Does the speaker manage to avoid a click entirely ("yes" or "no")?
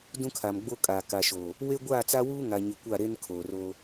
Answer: yes